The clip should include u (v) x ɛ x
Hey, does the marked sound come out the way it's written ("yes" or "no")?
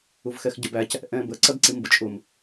yes